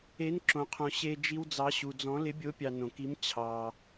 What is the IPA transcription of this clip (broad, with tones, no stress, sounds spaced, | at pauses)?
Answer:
e˧˥ n ǁ õ˧ qʰ õ˧ ɕ e˧ d͡ʒ i˧ w d͡z ɑ˧˥ ɕ u˧ d͡z ɔ̃˧˥ l ɪ˧˥ bʲ o˧˥ pʲ ɑ˧ n õ˧ k i˧˥ m t͡ɕʰ ɑ˧